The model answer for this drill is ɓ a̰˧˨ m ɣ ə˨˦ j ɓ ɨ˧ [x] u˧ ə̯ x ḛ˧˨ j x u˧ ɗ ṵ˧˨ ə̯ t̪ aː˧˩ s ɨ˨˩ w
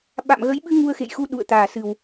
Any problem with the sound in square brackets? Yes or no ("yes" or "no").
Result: yes